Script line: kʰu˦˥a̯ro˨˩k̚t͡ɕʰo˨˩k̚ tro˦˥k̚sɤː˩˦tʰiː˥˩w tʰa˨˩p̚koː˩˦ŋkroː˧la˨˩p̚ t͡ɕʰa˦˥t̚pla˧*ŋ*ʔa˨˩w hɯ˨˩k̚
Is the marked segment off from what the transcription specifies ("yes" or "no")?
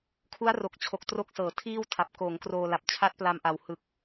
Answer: yes